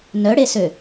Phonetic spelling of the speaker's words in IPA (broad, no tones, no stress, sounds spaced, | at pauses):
n œ ɽ e s ø